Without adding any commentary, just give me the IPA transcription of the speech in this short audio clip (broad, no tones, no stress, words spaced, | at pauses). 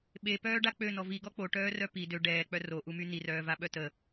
ɓepœːɖa k͡pønɔ viɡɔ k͡poʈœːrœ pi dø ɖɛːk͡pœ roʔumy nirœːvaɓœ tə